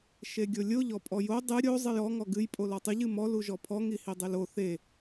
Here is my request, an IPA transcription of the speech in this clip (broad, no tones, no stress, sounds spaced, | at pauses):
ʃ e ɡʲ o lʲ o ʎ ɔ pʼ ɔ j o dˤ ɨ ɾʲ o zˤ ɨ j ɔ ŋ ɔ ɡ ɨ j pʼ o l ɔ tˤ ɨ ʎ ɨ m ɔ l u ʒ ɔ pʰ ɔ ŋ i h i dˤ e l o θ e